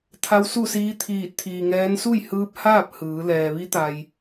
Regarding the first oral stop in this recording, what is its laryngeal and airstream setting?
aspirated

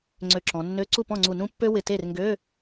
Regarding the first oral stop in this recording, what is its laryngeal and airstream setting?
click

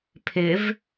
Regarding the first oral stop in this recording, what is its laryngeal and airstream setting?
aspirated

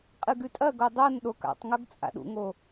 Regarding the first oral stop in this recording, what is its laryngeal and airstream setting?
ejective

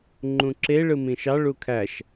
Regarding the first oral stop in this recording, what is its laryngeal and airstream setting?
click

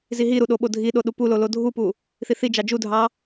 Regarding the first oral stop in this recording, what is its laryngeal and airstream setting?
implosive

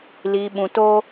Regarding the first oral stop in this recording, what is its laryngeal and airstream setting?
implosive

